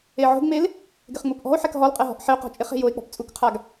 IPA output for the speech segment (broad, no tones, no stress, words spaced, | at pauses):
eʕo̤ɡŋ͡mel | ɡɪχŋ͡mupʔɔ̤o̯ħɛk ɦɔlqʼɛ ɦɔ̤ʔħɪo̯qɔ̤ t͡ʃʼɪχe̤ joe̯k͡pɔ̤p t͡sʼukqʰaɡ